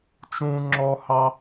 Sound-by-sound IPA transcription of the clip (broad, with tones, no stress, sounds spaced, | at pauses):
t͡ʃ ũː˥ ŋ͡ǁ ɔ˥ h ɑ˥